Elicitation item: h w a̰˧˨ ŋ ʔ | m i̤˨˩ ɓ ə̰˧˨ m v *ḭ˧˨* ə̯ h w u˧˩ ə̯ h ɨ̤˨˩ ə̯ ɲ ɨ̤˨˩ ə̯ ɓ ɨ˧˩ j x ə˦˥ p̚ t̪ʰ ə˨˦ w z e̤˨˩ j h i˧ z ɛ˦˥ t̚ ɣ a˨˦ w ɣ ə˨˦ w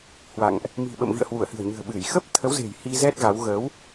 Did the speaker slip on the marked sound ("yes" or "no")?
no